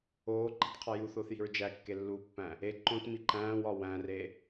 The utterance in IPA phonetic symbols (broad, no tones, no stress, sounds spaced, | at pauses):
oː ǃ i̤ t qʰ ɒ j u θ oː θ j i̤ ɹ d͡ʒ æ kː e lː uː pː æ̃ | e ǃ õ t m i ǃ æ̃ː w ɒ w æ̃ r e